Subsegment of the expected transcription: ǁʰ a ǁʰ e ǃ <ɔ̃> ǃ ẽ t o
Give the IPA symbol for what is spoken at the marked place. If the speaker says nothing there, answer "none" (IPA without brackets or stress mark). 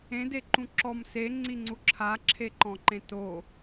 ɔ̃